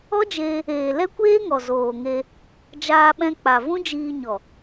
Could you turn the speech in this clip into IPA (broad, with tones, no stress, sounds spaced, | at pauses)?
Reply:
ɔ˦ d͡ʒ eː˧ | eː˨ l ɛ˦ kʷ eː˦ ŋ ɔ˨ z oː˨ ŋ e˧ | d͡ʒ aː˧ ɓ ɛ̃˧ k͡p a˨ v ũ˦ d͡ʒ iː˧ ɲ ɔ˨